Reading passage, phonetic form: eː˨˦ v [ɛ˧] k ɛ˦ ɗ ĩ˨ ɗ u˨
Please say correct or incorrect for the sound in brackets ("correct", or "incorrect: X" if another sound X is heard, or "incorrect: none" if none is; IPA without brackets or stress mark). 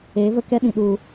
incorrect: ə˧